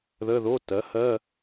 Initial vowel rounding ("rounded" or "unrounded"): unrounded